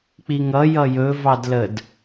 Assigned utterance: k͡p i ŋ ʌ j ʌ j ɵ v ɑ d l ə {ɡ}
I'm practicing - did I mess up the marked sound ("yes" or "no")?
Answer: yes